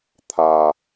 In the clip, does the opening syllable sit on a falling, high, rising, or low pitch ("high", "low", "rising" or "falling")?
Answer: low